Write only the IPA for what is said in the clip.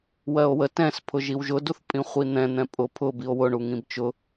w ɜ o̯ w ə t ɛ̃ s pʰ ʊ ʒ i w ʒ ʊ d u θ pʼ ĩ χʷ i n̪ ɛ̃ n̪ ɛ̃ pʼ ʊ pʰ ʊ b i o̯ w ʊ ɳ u ŋ ĩ b t͡ʃ ʊ

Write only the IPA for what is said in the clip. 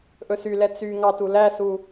ʔ ɵ s y l ɛ t͡s y ŋ ɑ t u l æ s u

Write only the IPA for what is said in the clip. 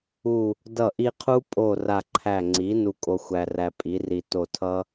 u˧˩ | d ʌ˧˩ ʔ i˧ qʰ u˦˥ pʼ o˧˩ r a˧˩ ǃʰ æ˧˩ ŋ͡ǀ i˩˥ n u˧ kʼ o˧ xʷ æ˧ r æ˧ pʼ i˩˥ r i˧ t o˧˩ tʰ ʌ˦˥

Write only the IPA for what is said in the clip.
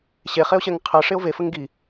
ɕ e χ e o̯ ɕ ɛ ŋ qʰ ɜ ʂ e o̯ v e f ə ŋ ɡ i

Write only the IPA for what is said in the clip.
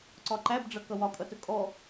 ǀ ɒ ǃ æ b ɖ͡ʐ ʌ k ʌ w ɒ kʼ ʌ t ə kʼ ɔ

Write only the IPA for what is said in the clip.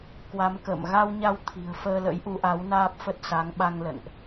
k w a˨˦ m k ə̰ː˧˨ m ɣ a˧ w ɲ a˧ w t̪ʰ i̤˨˩ ə̯ f əː˧ l ə̰˧˥ j ʔ u˨˦ ʔ a˨˦ w n aː˦˥ p̚ f ə˦˥ t̚ s a˨˦ ŋ ɓ a˧ ŋ l ə̰˧˨ n ʔ

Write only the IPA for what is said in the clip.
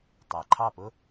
tˤ æ˩ ǃʰ ɑ˥˩ p ʊ˥

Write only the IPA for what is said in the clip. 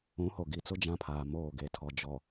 ũ˨˦ h o˨ ɡ i˨ t͡s ʊ˦ d͡ʒ ã˦ pʰ aː˨ m oː˦˨ ɡ e˨ tʰ ɔ˨ d͡ʒ ɔ˨

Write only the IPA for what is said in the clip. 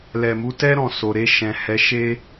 l ɛ˨ m u˨˦ t ɛ˦ ɾ ɔ̃˧ s o˨ ɾ e˧ ʃ ɛ̃˨ h ɛ˨˦ ʃ e˦

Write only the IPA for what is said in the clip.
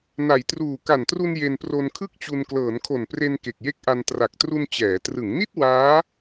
n a˩˦ j t r uː˨˩ k a˨˩ n t r u˧ n j e˧ n p r o˧ n kʰ ɯ˥˩ k̚ t͡ɕ u˧ n k l ɤː˩˦ n kʰ o˨˩ n p r e˧ n k e˨˩ k̚ j e˦˥ k̚ ʔ a˧ n t r a˨˩ k̚ t r u˧ n t͡ɕ ɛː˩˦ t r ɯ˩˦ ŋ n i˥˩ t̚ w aː˦˥

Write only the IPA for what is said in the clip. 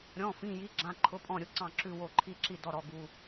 ɾʲ ɔ̃˧˥˧ f ĩ˧˥˧ j i˧˥˧ ɡ͡ǁ ã˧˥˧ ǃʰ ʊ˧˥˧ pʼ ɔ̃˥˨ ɾʲ ʊ˧˥˧ ǀ ɑ̃˥˨ ǁ ʉ˥˨ w o˥˨ ǃʰ i˥˨ ǁ i˥˨ d ɔ˥˨ ɾ ɔ˧˥˧ ɡ u˧˥˧

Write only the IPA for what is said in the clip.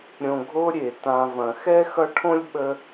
ɾʲ õ˨ ɡʱ o˦ ɾʲ e˩ t ã˨ v ɐ̃˩ x ɛ˥ x ʌ˦ ʈʰ õ˥ lʲ ɓ ə˦

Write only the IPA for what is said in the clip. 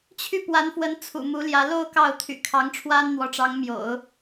t͡ɕʰ y˥˩ p w a˧˥ n f w ə˧˥ n t͡sʰ ṵ˨˩ m u˧˥ l j ä˧˥ l o˥˧ ʊ̯ k ɑ˥˩ ʊ̯ t̪ʰ y̰˨˩ kʰ ɑ˧˥ ŋ ʈ͡ʂʰ w a˥ n n̪ w ɔ˧˥ ʈ͡ʂ ɑ˧˥ ŋ m j o̰˨˩˦ ʊ̯

